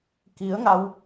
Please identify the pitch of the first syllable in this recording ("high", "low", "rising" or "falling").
rising